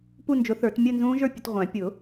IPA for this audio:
p u˥˧ n d͡ʒ ʊ˨˥ θ ə˞˨˩˦ t mʲ əː˥˧ n z ũː˦˥ ʒ ə˞˥˧ pʲ ə˨˩˦ t ʁʷ æ̃˨˩˦ pʲ ʊ˨˩˦

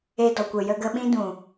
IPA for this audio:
e˧ d ɔ˨ kʷ ə˨ j ə˧ ɡ ə˧ ɓ ĩ˦ d ũ˨

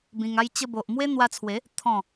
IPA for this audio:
b ĩ˧ ŋ a˦ j t͡ɕ ə˧ b o˨ ʔ m w e˦ n̪ w a˧ t͡sʰ w e˨˦ | t̪ʰ ɔ̃˥˧

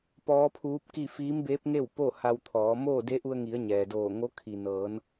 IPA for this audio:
p ɔː˧˥ pʰ uː˧˥ p̚ k i˥˨ f iː˧˥ m b eː˧˥ p̚ ŋ e˥˨ w p o˥˨ h a˧ w t̪ʰ ɔː˩˧ m oː˥˨ d e˧˥ ʔ u˧ ə̯ ŋ i˩˧ ə̯ ɲ ɛː˩ d oː˧˩ ŋ o˧˥ kʰ i˩ n ɤː˩˧ n

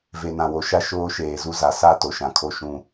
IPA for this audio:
v e˨ n ã˨ w o˨ ʃ a˦ ʃ oː˦ ʃ eː˨ z u˦ z a˨ s a˦ t o˨ ʃ ã˨ kʰ o˦ ʃ ũ˦

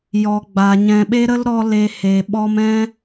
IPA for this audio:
j ɔ˨ ɡ͡b a˨ ɲ ɛ̃˨ ɓ e˦ ɾ ə˦ l ɾ ɔ˧ l e˧ h e˨ ɓ ɔ˦ m ɛ̃˦

